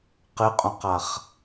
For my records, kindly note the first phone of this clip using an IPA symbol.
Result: q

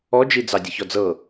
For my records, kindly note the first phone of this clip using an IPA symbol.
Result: ɔ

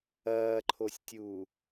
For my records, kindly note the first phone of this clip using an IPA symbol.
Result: ɐː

